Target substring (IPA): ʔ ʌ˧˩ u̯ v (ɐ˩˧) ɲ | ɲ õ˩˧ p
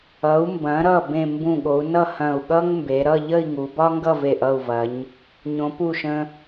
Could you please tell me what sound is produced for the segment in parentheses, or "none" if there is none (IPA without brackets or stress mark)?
ɐ˩˧